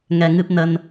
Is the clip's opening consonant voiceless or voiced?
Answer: voiced